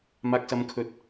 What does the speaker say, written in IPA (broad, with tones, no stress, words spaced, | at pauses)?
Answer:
maː˨k̚sɐ˨˧mkʰɵ˨˥t̚